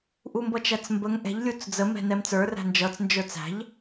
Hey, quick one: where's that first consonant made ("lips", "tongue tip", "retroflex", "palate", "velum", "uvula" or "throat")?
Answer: throat